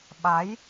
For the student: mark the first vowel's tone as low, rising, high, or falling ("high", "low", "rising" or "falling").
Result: rising